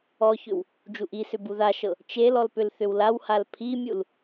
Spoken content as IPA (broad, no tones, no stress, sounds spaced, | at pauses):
ɔ ç ʏ w | d͡ʒ u ʔ i s ʏ b u ð a ʃ ɤ | t͡ʃ e l ɔ l p ʏ l θ ʏ w l a w h a l pʰ i mʲ u l